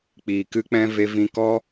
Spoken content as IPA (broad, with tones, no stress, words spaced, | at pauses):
k͡piː˨kɨ˧k͡pɛ̃˧ ve˧vĩ˧kɔ˦